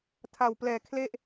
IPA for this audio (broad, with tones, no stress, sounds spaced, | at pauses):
tʰ a˨˩ w p l ɛː˨˩ kʰ l e˥˩ ʔ